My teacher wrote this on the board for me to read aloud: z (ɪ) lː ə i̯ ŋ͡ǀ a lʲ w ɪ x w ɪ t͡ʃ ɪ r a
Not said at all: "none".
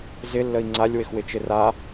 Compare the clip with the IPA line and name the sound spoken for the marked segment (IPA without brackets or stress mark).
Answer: ɪ